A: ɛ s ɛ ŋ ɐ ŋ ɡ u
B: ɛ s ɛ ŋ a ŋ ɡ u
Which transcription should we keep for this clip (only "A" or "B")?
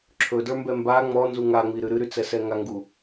B